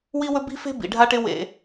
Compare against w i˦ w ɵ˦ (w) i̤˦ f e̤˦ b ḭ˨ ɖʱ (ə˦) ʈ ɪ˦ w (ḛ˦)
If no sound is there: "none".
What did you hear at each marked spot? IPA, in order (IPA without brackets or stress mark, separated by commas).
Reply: b, a˦, ḛ˦